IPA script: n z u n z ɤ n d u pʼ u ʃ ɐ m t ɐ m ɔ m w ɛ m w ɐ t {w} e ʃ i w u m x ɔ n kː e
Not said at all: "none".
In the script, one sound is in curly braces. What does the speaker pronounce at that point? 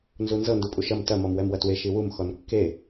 w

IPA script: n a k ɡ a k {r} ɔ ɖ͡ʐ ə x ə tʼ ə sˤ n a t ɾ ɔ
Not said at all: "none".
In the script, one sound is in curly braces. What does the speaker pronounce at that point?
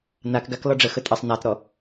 l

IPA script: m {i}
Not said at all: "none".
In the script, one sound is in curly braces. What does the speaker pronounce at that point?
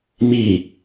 i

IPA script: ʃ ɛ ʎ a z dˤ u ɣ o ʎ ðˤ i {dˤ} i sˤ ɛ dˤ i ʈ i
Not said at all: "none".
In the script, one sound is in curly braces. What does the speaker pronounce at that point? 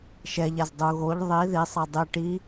ð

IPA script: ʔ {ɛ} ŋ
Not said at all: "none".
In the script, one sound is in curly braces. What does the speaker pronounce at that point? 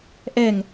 ɛ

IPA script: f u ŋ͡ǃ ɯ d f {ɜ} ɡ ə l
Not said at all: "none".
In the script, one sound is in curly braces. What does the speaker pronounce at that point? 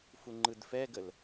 ɛ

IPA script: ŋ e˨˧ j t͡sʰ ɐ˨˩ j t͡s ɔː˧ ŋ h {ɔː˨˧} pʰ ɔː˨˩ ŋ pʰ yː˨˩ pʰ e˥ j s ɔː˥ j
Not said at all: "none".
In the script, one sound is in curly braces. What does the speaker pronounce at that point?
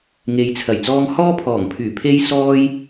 ɔː˥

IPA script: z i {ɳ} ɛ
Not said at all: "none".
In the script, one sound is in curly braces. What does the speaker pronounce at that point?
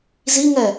ŋ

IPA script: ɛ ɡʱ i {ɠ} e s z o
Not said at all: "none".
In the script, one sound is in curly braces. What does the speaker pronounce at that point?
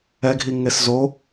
ŋ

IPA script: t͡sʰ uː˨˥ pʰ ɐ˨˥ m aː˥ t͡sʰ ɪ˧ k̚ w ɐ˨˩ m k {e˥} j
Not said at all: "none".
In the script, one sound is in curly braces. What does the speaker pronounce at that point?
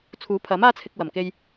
e˧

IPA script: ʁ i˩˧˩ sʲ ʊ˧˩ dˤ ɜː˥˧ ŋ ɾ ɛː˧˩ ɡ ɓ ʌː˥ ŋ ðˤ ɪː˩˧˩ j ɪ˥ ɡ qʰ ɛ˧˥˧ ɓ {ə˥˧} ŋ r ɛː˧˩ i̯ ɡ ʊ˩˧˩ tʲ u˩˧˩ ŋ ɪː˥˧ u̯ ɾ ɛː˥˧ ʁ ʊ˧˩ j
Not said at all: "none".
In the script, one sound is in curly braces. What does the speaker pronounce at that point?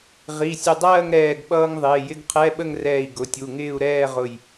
ə˥˧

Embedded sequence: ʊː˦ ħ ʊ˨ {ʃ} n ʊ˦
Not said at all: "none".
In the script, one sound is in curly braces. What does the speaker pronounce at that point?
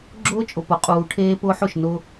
ʃ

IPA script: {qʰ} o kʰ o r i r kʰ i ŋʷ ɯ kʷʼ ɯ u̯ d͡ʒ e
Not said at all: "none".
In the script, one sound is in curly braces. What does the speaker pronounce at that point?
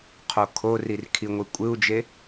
qʰ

